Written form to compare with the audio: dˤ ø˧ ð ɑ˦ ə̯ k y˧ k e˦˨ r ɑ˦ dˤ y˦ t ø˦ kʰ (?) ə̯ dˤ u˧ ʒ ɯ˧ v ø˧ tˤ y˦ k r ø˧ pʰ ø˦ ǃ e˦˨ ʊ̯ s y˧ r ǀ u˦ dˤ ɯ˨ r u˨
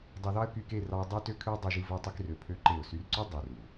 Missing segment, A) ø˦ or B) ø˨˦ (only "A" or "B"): A